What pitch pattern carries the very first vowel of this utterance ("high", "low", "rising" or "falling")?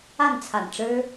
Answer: falling